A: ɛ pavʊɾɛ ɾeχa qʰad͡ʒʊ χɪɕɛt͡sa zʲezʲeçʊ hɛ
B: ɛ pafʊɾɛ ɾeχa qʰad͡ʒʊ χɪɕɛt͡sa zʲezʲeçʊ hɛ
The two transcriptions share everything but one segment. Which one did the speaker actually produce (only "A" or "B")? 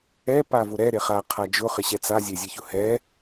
A